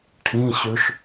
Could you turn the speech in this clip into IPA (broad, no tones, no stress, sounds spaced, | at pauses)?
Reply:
ʈʰ ĩ ɕ ʉ ʃ